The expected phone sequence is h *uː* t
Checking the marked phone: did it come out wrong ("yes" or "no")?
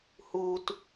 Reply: no